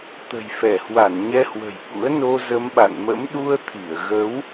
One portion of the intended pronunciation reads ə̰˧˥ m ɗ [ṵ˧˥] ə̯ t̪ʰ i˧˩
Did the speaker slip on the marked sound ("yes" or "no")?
yes